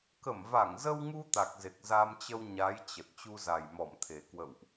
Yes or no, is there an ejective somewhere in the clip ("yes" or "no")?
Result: no